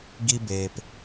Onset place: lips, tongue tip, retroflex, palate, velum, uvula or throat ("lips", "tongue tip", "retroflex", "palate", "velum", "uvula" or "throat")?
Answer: velum